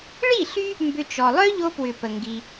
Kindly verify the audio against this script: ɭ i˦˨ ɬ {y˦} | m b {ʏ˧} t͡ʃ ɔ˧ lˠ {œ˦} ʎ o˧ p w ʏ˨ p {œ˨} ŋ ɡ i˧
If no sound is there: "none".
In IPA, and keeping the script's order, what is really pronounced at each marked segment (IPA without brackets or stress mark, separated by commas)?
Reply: y˦, ʏ˦, œ˦, ə˨